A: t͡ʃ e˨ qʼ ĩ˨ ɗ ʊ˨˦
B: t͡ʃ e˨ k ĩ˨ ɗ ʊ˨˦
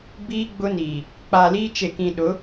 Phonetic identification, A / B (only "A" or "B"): B